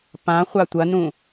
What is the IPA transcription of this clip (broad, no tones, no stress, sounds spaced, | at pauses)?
p ã χʷ a tʷ ɐ n ũ